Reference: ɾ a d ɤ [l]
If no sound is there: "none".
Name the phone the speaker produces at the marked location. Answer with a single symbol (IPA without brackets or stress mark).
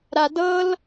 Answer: l